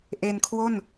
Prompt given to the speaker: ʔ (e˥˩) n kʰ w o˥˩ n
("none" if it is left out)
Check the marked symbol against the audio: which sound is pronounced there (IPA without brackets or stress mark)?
e˧